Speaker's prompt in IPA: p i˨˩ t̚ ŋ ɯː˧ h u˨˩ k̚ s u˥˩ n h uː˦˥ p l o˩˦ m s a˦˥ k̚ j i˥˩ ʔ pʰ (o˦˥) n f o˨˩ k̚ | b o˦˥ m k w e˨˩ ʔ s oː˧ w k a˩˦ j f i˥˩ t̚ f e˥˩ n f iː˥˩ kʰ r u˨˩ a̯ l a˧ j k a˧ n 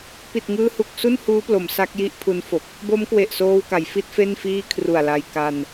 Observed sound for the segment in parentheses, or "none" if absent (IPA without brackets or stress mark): u˦˥